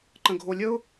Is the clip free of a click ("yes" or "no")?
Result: no